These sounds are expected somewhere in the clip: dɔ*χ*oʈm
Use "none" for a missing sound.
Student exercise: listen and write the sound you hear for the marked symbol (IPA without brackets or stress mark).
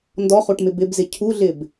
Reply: χ